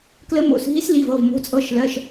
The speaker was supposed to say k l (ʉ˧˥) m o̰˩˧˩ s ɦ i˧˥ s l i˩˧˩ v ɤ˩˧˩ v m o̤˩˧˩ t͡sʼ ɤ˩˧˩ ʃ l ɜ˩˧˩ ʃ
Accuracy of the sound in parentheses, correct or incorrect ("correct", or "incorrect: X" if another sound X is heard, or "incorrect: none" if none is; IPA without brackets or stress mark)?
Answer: incorrect: ə˧˥